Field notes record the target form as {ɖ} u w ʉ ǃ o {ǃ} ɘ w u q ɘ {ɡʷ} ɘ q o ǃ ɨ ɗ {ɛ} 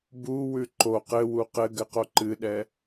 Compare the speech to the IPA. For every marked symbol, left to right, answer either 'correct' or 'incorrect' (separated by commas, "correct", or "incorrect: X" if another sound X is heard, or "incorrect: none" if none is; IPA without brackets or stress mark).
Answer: incorrect: b, incorrect: q, incorrect: ɡ, correct